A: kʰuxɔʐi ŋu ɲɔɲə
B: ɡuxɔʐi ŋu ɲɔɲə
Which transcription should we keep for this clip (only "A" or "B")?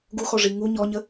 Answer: B